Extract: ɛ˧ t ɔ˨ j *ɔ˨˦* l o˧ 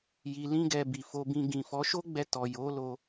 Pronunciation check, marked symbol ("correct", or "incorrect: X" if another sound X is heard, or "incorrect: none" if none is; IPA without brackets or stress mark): incorrect: o˨˦